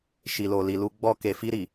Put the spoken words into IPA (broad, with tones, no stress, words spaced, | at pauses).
ʃi˨lo˨ li˨lu˧ ɡ͡bɔ˧ ke˨fi˧ɾi˨